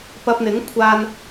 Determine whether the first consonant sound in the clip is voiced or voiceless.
voiceless